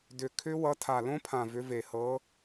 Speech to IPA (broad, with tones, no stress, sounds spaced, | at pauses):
d ʏ˨˩ kʰ ʏ˦˥ w ʌ˨˦ tʰ a˨˩ l õ˦˥ pʰ ã˨˩ v ʏ˨˦ v e˨˩ h ɤ˨˦